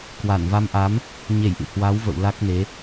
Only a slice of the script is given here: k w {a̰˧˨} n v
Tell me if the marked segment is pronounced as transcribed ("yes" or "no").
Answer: no